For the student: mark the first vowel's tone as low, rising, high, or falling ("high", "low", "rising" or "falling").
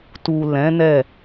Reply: low